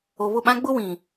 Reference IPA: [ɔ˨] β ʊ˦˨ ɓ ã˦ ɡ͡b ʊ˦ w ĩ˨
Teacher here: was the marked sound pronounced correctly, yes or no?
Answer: no